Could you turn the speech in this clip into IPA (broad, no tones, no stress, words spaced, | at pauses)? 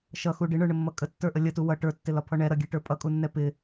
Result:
ʃʌxu ɖɪɳə˞ɳəmːʌ kʼətːə˞ʔə lʲətu wʌ ʈə˞tːɪlɒpʰɔ ɳɛɾʌɡʲɛʈə˞ pʼʌkʼunːɛ pɪ